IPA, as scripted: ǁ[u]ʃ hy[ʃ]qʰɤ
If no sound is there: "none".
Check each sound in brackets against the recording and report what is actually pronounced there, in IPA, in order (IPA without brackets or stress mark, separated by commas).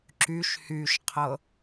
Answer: y, ʃ